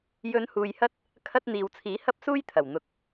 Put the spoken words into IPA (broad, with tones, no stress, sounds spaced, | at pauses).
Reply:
j ɵ˨˧ n h uː˨ j h ɐ˥ t̚ | kʰ ɐ˧ t̚ n̪ iː˨ w t͡sʰ iː˨˥ h ɐ˥ p̚ s uː˥ j t̪ʰ ɐ˨˩ w n̪ ʊ˨˥ k̚